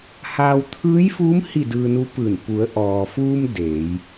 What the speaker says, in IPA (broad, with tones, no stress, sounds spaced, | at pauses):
h aː˧ w t̪ʰ ɯː˧˥ j f uː˧˥ m h i˥˨ d ɯː˧ n u˧˥ p ɯː˧˩ n p u˩˧ ə̯ ʔ ɔː˩ f uː˧ m d eː˩˧ j